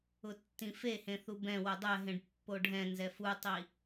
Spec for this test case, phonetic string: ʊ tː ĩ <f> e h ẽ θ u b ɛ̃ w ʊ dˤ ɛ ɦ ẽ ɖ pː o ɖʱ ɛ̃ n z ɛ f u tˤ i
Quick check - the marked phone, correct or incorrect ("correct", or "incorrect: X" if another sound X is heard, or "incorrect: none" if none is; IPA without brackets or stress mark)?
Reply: correct